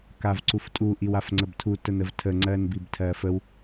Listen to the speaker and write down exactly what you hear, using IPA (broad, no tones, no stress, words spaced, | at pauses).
kavǀuftʼu ʔiwafŋ͡ǀəbtʰu tənəvtʰə ŋ͡ǀɜnbibtʰɜfəw